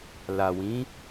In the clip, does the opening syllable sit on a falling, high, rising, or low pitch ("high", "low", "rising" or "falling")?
low